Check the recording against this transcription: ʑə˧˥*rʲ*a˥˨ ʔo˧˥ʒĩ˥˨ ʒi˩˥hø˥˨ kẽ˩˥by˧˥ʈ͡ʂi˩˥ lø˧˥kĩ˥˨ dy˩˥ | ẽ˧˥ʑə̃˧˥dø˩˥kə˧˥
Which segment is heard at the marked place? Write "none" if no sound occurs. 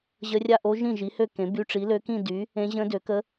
rʲ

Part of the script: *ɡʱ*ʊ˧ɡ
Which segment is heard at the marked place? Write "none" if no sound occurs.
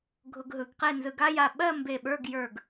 ɡʱ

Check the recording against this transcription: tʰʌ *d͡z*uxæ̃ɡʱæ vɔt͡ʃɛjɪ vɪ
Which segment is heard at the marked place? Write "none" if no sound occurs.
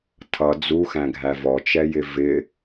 d͡z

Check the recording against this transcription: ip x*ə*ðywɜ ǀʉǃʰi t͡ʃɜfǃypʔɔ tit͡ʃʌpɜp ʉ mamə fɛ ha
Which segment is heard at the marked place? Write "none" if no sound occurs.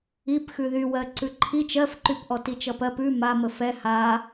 ʉ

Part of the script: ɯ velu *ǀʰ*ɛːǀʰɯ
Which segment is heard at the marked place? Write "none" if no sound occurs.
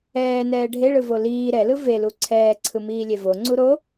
ǀʰ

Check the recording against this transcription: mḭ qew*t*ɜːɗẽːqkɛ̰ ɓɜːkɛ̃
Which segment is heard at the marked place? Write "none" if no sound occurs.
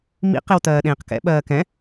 t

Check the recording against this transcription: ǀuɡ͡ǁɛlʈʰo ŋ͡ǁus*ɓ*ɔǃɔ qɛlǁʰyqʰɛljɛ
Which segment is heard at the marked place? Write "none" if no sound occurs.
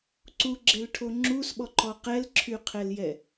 ɓ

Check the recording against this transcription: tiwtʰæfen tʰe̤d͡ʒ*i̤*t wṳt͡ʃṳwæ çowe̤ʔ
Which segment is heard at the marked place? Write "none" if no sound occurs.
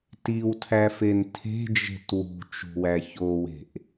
e̤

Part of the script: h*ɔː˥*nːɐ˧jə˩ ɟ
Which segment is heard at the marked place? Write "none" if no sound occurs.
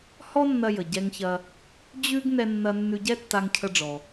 ɔ˥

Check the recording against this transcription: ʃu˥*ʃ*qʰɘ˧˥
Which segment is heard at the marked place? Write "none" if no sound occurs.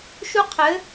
none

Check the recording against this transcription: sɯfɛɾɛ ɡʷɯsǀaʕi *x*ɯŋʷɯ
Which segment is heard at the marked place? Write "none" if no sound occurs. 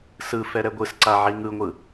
ŋ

